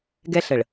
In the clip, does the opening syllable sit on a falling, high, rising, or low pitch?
high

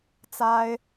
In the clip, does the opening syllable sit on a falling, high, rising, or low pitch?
high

